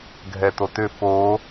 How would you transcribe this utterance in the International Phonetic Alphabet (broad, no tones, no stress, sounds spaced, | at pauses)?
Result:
ɡʱ ɛ t o t ʏ f o